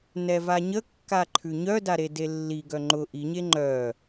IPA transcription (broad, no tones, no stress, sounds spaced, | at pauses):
n ɛ v a ɲ ə kː a ǃʰ ʉ ɲ œ d a ɾ e d e lː i ɡ œ ŋ͡ǃ ʊ ʔ i ɲ e ŋ͡ǃ œ